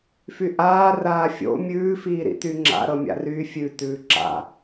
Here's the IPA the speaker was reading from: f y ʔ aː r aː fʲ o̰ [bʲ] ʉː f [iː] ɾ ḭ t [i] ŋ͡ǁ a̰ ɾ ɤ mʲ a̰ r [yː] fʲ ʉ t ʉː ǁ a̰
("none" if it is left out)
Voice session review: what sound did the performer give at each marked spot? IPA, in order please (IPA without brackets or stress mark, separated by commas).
mʲ, iː, y, yː